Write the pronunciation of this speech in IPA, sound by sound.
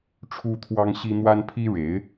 ʈ͡ʂʰu˥t̪ʰwɑ˥ŋɕi˥ n̪wa˥npʰi˥ɻe˧˥ɪ̯

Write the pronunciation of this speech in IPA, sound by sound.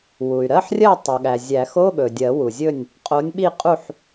wu˩y̯ɾɜ˧˥˧ħrʲɜ˥˨ tˤɵ˩ɠæ˩ zʲæ˨˩˦x o˧˥˧ɠɵ˩ dʲɜ˨˩˦wu˩zʲɵ˥˨nʲ | qʼo˨˥nʲɓi˥˨qʼu˥˨ħ

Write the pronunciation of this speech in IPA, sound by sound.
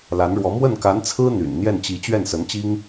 la˧˥nɻwɔ˧˥ mwə˥˩nka˧˥nt͡sʰɹ̩˥ n̪y̰˨˩n n̪jɛ˥˩nt͡ɕi˧˥ t͡ɕɥɛ˥˩nsə˧˥nt͡ɕi˥ŋ

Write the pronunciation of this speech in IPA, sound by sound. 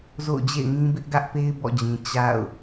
zo̰˦˨ʊ̯d͡ʑḛ˦˨ɪ̯ŋĩ˦bɪ˦ʔ ɡä˦ʔpe˦ɪ̯ bɔ̰˦˨d͡ʑĩ˨ t͡ɕa̰˦˨ʊ̯

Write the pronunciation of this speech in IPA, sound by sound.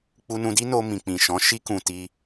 k͡pu˧nũ˧di˦no˧ mĩ˨k͡pĩ˨ʃɔ̃˨˦ ʃi˧kũ˨ ti˧

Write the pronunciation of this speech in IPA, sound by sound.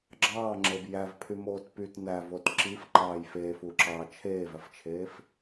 ɡ͡ǁɑːŋ͡ǁeb jævpʰymoːt pyt nævot ǁifǃɑːj feːfuǁɑː t͡ʃʰeːvæft͡ʃʰeːf

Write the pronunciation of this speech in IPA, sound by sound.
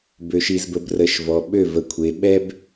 bø˨ʃi˨z bə˨brə˨ʃ vɔ˨ɓø˦˨ və˨kʷʰe˨ɓɛ˦b

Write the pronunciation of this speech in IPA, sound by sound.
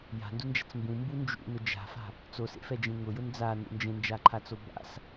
ja̤ndund͡ʒa̤t͡s mbũmbu nd͡ʒṵnʊ d͡ʒa̤fa̤ | t͡sosḛfɛd͡ʒẽ ŋʊjʊn d͡zanṵ nd͡ʒẽnd͡ʒaǃʰat͡so ba̰s

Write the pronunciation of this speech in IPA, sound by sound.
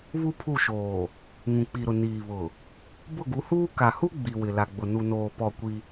βu˦pʰu˦˨ʃoː˨ | ŋũ˨k͡pi˨ɾʊ˨ niː˨βʊ˨ | bʊ˦˨ɡu˨˦huː˦ ka˨hu˦ ɡ͡bi˨wɪ˨ la˨ɡ͡bʊ˨ nu˨noː˨ pɔ˦˨kʷi˦

